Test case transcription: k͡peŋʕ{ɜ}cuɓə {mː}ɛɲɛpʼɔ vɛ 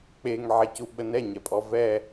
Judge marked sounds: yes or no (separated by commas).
no, no